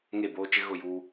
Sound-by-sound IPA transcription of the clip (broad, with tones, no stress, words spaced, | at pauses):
ŋe˦˨boː˦t͡ʃɪ˦ ɣʊ˦˨juː˦